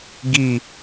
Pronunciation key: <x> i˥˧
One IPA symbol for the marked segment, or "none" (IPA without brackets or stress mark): ɡ